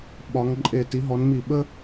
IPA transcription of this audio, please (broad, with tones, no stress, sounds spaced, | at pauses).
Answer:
ɓ ɒ˧˥ ŋ ǃʼ e˦˨ t i˧˥ ɦ ɔ˧˥ n m i˦˨ ɓ ə˥